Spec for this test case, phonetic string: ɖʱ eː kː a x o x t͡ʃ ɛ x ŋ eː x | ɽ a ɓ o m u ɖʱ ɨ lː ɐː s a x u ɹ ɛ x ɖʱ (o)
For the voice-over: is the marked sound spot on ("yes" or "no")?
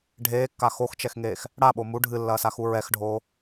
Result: no